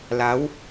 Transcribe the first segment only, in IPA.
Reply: l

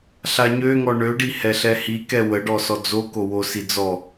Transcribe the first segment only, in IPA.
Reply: ɬ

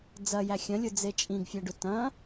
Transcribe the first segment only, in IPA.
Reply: d͡z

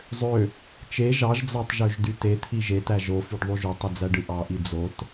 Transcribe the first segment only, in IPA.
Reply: zˤ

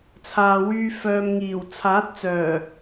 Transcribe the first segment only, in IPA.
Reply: t͡sʰ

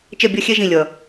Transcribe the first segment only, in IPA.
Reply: t͡ʃ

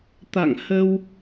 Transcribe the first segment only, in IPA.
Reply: t̪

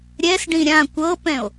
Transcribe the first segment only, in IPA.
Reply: ɾʲ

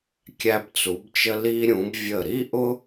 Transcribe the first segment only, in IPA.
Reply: kʲ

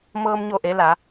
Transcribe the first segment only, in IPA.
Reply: m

